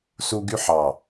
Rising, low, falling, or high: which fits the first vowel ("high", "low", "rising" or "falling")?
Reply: high